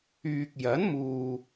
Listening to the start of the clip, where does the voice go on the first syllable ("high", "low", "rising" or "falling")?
low